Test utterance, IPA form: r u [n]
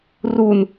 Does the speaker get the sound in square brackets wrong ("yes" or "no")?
no